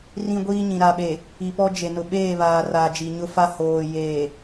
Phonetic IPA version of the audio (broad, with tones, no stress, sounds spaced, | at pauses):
r ĩ˦ ɡʷ iː˦ ɲ ĩ˨ ɾ a˨ ɓ e˨ | i˨ p ɔ˦ d͡ʒ e˨ n ʊ˨ ɓ eː˦˨ β aː˨ r aː˨ d͡ʒ i˨ ɲ ʊ˦ f a˦ h oː˨ j eː˨